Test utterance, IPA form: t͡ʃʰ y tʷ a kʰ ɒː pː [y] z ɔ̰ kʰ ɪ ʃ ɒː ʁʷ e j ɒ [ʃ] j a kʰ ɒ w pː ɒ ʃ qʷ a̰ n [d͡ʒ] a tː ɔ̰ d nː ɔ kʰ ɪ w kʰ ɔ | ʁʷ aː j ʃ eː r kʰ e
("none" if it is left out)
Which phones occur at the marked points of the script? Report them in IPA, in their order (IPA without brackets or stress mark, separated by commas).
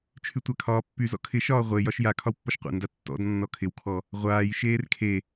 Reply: y, ʃ, d